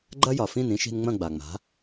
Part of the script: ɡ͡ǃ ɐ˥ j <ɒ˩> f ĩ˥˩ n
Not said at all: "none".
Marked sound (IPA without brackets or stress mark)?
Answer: ɒ˩